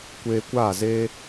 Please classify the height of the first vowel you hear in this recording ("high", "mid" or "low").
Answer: mid